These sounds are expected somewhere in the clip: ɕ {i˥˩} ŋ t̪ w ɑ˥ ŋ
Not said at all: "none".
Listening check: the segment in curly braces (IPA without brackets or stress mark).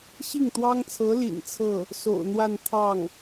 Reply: i˥˩